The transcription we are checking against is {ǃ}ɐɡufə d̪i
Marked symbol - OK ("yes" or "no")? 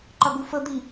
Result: yes